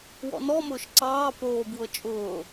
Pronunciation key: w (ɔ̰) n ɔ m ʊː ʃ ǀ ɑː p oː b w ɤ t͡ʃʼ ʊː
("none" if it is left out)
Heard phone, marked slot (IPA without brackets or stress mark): ɔ̰